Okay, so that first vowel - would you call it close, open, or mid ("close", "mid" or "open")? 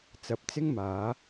open